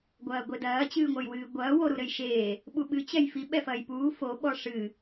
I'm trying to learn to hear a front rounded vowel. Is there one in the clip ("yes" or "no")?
no